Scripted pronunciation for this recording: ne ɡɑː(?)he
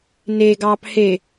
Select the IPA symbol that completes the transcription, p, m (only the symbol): p